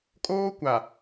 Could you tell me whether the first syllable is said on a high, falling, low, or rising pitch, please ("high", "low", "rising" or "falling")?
high